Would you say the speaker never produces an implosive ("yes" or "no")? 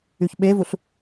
no